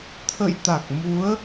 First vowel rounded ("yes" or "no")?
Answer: no